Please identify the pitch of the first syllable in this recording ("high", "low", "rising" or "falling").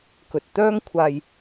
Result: low